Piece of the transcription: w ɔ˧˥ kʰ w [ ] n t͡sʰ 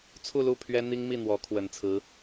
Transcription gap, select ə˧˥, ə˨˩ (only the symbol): ə˨˩